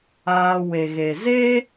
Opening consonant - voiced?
yes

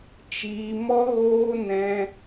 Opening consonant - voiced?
no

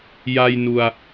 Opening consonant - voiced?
yes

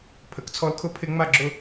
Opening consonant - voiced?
no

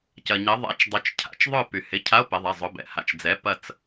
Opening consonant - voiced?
no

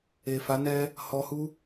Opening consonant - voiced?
no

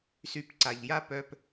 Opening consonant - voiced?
no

